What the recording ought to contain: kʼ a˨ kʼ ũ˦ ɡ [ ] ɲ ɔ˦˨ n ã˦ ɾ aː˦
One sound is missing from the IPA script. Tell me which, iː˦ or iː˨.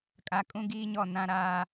iː˦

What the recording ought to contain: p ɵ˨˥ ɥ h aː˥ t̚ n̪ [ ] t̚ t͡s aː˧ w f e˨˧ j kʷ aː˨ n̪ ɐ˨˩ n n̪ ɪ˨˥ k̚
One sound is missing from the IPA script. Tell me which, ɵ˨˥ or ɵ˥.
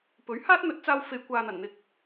ɵ˨˥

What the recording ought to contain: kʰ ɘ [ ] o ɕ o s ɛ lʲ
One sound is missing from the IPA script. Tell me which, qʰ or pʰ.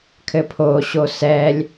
pʰ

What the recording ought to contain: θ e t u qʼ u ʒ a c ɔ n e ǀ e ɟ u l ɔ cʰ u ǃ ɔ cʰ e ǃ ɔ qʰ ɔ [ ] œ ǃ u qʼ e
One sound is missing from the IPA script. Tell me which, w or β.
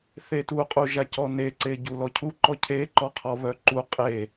β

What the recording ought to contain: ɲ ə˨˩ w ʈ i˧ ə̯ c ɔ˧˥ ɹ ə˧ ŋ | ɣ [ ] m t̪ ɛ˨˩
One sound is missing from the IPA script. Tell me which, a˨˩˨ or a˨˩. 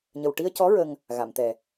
a˨˩˨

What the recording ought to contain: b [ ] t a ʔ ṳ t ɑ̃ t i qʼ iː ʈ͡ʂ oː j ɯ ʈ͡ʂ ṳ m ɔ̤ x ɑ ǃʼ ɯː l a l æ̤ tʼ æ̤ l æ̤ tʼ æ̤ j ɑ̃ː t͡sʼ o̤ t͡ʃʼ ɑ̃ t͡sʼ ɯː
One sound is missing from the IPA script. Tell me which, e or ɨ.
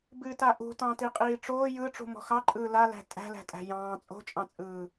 ɨ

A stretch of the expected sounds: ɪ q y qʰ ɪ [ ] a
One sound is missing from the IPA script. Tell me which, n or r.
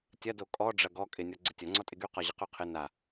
n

